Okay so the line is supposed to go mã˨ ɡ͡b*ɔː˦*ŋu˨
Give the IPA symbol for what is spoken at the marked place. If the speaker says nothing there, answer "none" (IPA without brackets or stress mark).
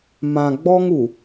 ɔ˦